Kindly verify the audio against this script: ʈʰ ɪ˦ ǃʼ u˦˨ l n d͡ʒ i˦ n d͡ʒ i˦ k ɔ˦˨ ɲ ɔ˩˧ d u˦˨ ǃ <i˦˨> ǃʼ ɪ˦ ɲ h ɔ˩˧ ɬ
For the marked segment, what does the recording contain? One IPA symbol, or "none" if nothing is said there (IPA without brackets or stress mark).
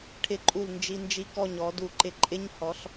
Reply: ɪ˦˨